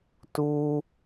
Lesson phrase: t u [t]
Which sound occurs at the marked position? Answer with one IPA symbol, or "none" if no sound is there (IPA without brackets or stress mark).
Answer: none